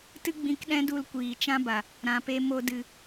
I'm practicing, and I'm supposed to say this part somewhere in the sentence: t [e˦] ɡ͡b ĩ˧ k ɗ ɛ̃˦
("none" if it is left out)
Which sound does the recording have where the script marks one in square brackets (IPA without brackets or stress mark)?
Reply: ɨ˦